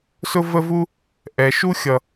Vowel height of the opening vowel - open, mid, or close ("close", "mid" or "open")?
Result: close